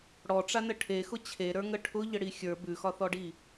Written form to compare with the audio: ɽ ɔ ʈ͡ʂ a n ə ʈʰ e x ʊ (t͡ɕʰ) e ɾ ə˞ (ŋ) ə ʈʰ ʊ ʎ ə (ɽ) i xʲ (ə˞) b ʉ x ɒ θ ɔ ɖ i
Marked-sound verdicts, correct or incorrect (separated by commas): correct, correct, correct, correct